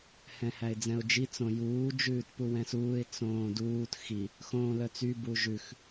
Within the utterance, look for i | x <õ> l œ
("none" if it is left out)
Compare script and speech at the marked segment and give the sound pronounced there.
õː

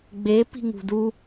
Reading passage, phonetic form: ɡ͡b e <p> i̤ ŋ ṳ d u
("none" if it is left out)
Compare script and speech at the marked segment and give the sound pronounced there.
p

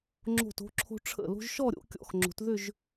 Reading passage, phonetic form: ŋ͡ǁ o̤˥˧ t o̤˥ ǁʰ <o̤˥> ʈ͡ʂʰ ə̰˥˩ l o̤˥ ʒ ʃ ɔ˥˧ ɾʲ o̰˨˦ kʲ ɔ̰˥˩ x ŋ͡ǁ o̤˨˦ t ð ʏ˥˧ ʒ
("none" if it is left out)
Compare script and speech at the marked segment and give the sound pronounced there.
o̤˥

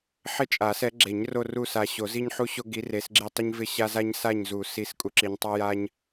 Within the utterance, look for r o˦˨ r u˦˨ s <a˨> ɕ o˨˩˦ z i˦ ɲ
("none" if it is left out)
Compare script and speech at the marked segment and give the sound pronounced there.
a˨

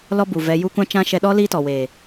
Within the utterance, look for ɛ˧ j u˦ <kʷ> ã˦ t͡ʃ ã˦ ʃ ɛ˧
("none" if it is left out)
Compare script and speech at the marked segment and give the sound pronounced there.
kʷ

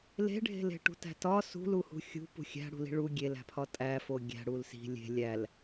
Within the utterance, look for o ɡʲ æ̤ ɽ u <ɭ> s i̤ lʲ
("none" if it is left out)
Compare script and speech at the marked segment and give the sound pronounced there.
l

